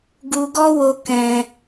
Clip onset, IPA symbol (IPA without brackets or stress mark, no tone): ɡ